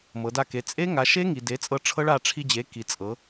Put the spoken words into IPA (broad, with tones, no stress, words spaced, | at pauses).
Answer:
mɤ˩˧da˧ ke˩˥ t͡sʼe˦˥ŋa˩˥ʃe˦˥ ŋi˩˧ de˩˥t͡sʼɤ˧ ʈ͡ʂʰɤ˦˥ɭa˧ ʈ͡ʂʰi˧d͡ʑe˩˥ ki˩˧t͡sʼɤ˩˧